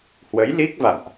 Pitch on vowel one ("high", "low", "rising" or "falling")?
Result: rising